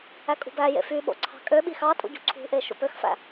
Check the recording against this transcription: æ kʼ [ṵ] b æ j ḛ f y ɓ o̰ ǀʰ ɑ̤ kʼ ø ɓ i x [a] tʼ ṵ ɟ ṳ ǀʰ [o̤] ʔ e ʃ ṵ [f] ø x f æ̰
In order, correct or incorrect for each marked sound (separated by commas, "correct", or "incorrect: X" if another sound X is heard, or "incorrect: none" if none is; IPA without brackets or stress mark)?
incorrect: ṳ, incorrect: ɑ, incorrect: ṳ, incorrect: p